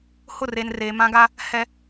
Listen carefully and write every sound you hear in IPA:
h ʊ˦˨ r e˨ n r eː˨ m ã˦ ɡ a˦ | h ɛ˨

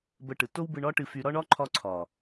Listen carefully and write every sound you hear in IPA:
b ə˧ ʈ ɯ˨ t o˦ w b ɯ˧ ɳ ɒ˦ ʈ ɨ˧ f y˧ ɾ ɒ˦ ɳ ɒ˦ ǃʰ ɒ˧ ǀʰ ɒ˨

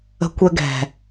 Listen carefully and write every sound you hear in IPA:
ə̤˧ kʷ ɛ˧ ɡ ɛ̤˨

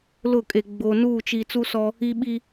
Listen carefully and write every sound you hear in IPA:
l ʊ˦˨ kʼ e˨ ɡ͡b oː˨ n uː˦˨ t͡ʃ i˨ t͡s u˦ s ɔ˦ | i˦ ɓ i˦

